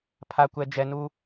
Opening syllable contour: low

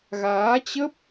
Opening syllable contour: rising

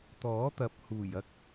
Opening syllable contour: rising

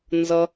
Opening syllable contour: high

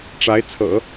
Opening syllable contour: rising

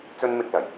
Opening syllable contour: high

